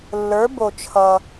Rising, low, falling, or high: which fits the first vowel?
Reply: rising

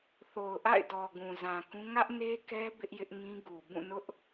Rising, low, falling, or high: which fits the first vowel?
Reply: low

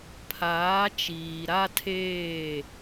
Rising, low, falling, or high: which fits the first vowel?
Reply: rising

